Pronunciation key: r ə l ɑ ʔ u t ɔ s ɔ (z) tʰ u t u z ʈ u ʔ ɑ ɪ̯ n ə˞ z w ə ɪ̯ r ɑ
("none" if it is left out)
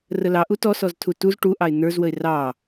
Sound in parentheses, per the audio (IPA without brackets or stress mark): z